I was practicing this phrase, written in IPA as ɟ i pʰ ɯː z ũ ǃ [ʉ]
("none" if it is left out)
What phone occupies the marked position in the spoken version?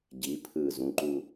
u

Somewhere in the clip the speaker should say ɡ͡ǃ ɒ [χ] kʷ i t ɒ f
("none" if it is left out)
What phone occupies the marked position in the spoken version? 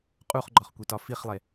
χ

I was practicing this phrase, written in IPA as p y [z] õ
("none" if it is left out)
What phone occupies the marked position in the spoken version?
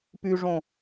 ʐ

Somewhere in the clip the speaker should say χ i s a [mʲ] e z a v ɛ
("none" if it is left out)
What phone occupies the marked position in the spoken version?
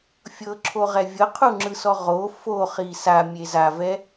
mʲ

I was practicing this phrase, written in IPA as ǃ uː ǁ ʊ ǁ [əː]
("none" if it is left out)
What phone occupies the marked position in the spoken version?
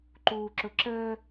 əː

